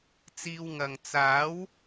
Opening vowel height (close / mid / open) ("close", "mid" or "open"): close